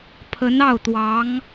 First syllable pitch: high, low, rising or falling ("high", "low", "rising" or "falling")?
rising